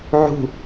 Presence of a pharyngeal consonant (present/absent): present